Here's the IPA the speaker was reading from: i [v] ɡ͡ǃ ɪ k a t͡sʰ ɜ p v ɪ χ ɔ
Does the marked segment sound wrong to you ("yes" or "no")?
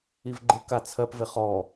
no